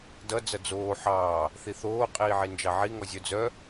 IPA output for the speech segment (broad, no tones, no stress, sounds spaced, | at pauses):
d ʌ d͡z ʌ d͡z oː ħ ɑː | θ i θ oː qʼ iː ʕ i n d͡ʒ ɑ ʕ i ŋ ɔ zʲ œ d͡z œ